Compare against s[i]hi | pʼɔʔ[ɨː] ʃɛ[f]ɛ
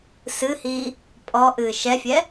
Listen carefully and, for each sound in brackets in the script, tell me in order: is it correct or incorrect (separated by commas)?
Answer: incorrect, correct, incorrect